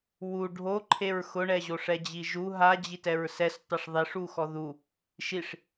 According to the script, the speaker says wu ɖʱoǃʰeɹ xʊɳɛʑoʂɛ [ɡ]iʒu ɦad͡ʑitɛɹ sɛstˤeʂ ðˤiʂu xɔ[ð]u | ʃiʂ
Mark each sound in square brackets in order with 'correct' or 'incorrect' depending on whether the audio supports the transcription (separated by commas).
incorrect, correct